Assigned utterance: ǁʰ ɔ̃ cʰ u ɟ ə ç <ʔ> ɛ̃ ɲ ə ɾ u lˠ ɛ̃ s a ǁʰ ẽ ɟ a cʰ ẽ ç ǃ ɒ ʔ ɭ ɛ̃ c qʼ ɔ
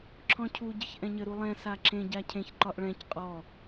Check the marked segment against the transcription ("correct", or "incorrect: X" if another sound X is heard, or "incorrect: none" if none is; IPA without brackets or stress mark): correct